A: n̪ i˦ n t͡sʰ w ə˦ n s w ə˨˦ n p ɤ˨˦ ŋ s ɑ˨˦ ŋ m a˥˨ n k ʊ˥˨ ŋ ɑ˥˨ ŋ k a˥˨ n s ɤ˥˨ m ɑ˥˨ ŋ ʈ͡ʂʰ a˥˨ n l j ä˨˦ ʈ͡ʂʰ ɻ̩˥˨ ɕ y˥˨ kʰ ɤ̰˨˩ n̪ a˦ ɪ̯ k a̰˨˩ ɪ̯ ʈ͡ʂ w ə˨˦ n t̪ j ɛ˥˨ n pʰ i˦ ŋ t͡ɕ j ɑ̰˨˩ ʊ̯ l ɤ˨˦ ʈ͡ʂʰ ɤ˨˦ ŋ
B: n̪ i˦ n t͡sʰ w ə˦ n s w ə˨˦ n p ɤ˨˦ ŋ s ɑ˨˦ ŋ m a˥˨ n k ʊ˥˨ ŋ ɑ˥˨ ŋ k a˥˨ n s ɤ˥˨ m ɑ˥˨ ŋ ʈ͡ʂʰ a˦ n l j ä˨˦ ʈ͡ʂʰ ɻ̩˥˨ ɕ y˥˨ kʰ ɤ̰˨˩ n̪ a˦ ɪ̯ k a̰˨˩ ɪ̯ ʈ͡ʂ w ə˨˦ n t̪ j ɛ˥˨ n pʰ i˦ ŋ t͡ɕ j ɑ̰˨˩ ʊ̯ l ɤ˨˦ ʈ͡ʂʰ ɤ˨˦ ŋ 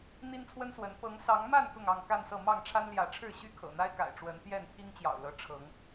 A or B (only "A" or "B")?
B